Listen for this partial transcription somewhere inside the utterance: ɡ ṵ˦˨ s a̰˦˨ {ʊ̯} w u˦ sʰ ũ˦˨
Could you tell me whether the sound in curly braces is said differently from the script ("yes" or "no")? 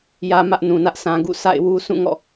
yes